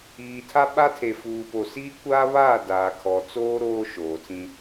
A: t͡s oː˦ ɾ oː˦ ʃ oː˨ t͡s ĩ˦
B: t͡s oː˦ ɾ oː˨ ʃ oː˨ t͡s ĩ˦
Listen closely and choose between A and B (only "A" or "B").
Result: A